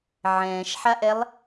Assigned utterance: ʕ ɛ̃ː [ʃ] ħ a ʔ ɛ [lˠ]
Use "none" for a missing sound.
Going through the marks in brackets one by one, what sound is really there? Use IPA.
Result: ʃ, lˠ

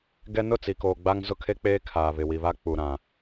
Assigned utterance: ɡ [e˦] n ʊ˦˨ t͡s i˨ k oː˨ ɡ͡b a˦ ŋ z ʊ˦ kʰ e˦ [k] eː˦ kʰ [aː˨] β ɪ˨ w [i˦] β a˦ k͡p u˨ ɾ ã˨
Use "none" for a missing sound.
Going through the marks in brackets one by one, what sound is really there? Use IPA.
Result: ɛ˦, k͡p, aː˨, i˨

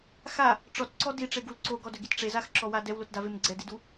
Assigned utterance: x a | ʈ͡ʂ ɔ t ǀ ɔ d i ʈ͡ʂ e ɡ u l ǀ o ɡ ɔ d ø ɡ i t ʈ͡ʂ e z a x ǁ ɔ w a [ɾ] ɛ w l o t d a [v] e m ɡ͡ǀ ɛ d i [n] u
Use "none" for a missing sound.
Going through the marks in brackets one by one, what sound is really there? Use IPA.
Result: d, v, d

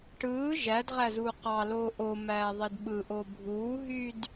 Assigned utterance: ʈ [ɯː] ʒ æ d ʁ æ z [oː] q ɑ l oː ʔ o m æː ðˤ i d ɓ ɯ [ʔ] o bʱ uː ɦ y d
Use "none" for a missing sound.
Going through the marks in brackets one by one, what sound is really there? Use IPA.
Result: ɯː, uː, ʔ

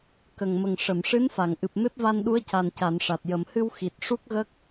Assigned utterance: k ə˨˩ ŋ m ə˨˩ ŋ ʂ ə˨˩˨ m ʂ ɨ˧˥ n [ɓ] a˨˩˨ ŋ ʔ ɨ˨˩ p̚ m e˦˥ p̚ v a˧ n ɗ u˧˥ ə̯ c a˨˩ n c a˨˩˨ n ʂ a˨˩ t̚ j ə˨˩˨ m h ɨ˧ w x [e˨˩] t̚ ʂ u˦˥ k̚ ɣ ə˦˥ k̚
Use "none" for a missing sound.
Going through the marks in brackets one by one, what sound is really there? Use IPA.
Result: f, i˨˩

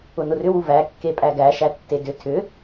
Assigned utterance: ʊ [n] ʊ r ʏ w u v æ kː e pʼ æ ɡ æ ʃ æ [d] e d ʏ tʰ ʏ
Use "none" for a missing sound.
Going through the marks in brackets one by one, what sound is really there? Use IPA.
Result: n, tː

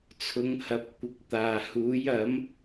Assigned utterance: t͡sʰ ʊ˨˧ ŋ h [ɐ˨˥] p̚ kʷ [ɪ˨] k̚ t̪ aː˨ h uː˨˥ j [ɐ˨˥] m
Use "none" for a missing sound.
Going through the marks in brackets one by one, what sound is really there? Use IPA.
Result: ɐ˨˥, ɪ˨˥, ɐ˨˥

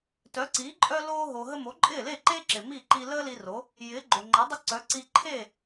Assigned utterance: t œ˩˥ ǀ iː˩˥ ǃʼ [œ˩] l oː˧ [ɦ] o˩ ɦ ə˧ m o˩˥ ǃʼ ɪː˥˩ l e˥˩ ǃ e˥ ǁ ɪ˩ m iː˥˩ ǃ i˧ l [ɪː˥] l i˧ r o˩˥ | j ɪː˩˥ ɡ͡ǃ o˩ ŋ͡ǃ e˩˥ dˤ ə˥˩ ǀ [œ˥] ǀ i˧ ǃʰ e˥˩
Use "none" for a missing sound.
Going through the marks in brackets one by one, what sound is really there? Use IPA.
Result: œ˧, ɦ, əː˥, œ˩˥

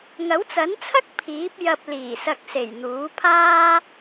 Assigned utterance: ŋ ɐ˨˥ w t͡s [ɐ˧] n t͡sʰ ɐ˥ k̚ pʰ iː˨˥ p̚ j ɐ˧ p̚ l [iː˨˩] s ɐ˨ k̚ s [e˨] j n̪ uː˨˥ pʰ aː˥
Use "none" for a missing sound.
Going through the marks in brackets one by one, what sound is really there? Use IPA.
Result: ɐ˨˥, iː˨˩, e˨˩

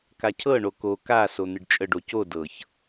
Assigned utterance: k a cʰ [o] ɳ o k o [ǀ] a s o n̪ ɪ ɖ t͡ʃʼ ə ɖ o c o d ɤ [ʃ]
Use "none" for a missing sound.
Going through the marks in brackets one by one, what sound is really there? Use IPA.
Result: ɤ, k, ç

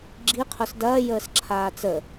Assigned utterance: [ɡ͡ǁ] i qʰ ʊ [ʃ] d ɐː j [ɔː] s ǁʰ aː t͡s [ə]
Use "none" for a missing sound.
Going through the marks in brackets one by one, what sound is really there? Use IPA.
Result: ɡ͡ǁ, s, əː, ə

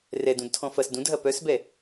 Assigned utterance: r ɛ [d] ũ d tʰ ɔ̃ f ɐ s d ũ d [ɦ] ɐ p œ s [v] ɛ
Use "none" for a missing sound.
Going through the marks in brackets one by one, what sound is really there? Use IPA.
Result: d, ɦ, b

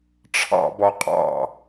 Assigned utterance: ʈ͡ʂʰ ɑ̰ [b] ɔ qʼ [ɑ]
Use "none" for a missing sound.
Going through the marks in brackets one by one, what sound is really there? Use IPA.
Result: b, ɑ̰

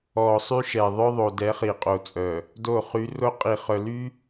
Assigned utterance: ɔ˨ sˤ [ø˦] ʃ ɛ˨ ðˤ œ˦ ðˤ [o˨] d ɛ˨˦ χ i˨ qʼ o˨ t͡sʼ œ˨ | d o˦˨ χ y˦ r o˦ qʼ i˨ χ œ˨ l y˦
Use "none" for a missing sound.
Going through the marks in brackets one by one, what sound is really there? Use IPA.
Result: y˦, o˨

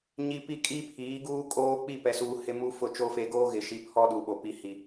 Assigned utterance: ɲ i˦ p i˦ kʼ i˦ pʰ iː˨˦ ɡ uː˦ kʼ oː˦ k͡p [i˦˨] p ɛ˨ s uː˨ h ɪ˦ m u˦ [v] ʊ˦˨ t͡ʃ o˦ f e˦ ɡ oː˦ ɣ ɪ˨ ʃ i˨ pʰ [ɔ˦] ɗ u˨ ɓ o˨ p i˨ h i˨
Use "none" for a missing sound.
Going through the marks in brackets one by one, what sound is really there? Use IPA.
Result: i˦˨, f, ɔ˦

